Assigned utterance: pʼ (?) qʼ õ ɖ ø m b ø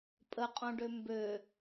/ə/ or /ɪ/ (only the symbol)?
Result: ə